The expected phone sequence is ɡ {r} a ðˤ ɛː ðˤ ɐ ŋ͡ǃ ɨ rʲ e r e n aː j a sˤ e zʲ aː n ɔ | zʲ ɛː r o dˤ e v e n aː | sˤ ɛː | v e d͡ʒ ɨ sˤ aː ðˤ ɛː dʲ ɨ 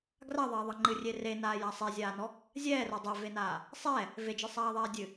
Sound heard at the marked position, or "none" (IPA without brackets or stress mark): r